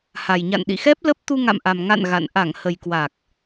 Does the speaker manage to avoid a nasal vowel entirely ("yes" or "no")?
yes